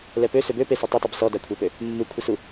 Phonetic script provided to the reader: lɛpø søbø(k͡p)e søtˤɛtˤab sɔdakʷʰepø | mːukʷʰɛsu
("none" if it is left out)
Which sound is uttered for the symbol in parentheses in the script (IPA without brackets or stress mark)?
p